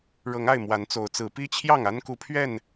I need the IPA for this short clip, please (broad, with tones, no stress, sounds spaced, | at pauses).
ɻ ɤ˨˦ ŋ a˥˨ ɪ̯ m w a˨˦ n t͡s o˨˦ ʊ̯ t͡s ɹ̩˨˦ p i˦ t͡ɕʰ j ɑ˥˨ ŋ a˦ n k u˨˦ pʰ ɥ ɛ˥˨ n